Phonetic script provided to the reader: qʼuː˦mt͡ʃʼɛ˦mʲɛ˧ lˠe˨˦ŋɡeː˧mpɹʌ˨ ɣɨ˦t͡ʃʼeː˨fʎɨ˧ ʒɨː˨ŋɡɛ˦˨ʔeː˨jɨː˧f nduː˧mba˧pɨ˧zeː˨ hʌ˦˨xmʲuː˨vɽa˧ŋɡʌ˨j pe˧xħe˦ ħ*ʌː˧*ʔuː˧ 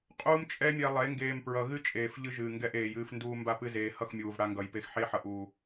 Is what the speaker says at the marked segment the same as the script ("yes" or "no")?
no